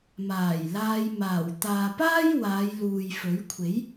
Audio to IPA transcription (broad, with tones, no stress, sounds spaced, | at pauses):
m aː˨˩ j l aː˧ j m aː˨˩ w t̪ aː˨ p aː˥ j w aː˨˧ j l uː˨ j f ɵ˨˥ ɥ kʷʰ e˨˥ j